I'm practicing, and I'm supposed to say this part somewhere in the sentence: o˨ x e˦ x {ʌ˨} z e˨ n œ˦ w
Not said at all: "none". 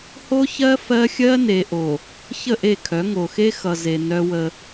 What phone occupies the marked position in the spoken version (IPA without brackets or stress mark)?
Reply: ʌ˨